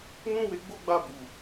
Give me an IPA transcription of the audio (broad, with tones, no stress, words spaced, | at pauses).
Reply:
nũ˦we˧ɡ͡bo˦ ɡ͡ba˦˨bu˨